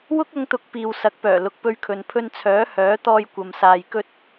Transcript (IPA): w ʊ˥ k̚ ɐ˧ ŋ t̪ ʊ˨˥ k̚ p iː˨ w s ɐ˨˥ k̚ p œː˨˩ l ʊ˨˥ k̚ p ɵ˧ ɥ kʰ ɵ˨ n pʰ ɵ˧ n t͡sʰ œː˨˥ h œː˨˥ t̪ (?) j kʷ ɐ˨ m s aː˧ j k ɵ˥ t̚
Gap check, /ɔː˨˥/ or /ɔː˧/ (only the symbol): ɔː˧